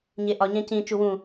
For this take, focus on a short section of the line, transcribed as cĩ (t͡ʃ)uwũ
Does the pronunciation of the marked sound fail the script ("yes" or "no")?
no